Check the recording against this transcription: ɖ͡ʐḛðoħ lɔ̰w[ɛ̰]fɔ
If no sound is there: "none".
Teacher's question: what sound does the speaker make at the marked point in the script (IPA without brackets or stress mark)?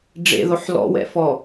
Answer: ɛ̰